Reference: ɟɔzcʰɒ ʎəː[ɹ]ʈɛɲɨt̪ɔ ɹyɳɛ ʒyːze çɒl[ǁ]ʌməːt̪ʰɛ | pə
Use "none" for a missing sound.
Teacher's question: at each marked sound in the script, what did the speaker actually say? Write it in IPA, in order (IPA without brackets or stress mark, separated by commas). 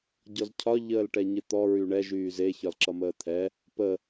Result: l, ǁ